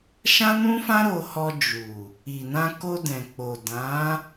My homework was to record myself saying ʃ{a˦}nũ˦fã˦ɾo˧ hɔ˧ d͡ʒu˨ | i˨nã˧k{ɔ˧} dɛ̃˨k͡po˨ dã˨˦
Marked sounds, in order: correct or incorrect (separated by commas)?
incorrect, incorrect